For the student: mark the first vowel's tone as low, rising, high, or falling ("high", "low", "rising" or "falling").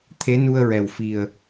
rising